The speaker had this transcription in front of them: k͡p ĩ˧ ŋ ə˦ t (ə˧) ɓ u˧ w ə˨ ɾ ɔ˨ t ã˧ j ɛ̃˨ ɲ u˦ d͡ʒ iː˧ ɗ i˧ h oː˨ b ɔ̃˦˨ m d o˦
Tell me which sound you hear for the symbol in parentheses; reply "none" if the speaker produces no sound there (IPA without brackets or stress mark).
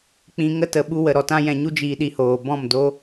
ə˨